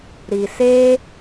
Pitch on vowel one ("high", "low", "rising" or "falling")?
low